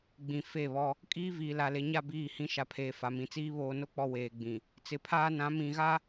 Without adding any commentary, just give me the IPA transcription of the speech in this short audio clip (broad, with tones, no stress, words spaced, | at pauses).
ɡ͡bĩ˨fe˦˨βɔ˦ | kʼiː˦viː˨la˨ le˨ɲa˦˨ biː˦˨hĩ˦ ʃa˨pʰeː˨ fa˨mĩ˨t͡siː˦ βoː˨no˦k͡pɔ˨ weː˨ɡ͡bĩ˨ | t͡sɪ˨pʰaː˦ nã˨˦mĩ˨ɣa˦